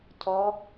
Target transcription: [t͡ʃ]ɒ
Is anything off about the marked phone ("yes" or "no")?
yes